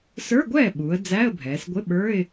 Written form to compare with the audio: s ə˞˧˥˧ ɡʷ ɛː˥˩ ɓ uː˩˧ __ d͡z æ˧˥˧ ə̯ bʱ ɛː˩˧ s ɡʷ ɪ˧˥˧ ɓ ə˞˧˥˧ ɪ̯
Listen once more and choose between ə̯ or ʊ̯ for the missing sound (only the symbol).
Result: ə̯